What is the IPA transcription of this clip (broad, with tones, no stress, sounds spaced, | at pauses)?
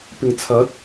p ɪ˨˩ ŋ t͡sʰ ɐ˨˥ t̚